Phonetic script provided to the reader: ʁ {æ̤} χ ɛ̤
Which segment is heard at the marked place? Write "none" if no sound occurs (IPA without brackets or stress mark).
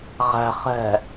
æ̤